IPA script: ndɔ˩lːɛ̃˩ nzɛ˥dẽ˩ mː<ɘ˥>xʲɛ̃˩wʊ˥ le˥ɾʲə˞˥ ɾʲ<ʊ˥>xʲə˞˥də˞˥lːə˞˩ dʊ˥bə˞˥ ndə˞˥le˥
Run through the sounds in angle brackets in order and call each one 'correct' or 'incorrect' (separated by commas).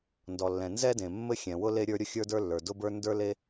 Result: correct, correct